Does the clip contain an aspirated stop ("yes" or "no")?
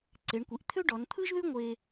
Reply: yes